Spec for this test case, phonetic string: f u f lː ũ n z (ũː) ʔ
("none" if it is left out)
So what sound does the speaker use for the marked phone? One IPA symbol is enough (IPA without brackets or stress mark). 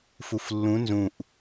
ũ